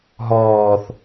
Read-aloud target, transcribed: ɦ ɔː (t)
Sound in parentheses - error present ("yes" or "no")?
yes